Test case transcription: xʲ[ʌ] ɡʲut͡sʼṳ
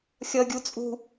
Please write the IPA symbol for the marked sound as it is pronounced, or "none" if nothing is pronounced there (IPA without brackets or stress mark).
ʌ